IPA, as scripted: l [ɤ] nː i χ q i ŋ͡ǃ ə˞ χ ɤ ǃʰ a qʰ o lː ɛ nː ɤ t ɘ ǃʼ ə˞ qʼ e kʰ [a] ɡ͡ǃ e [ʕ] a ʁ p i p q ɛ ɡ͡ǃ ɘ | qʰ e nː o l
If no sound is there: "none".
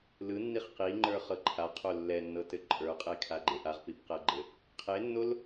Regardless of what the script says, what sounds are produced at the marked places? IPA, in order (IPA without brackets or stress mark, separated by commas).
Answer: ɯ, a, ʔ